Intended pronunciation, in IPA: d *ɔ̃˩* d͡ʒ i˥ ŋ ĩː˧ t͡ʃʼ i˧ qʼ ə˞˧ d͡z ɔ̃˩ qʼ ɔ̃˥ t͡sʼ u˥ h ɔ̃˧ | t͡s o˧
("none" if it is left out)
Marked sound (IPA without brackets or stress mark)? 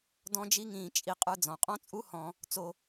ɔ̃˥